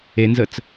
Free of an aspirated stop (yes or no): yes